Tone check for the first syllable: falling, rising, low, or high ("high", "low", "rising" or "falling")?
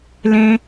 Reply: high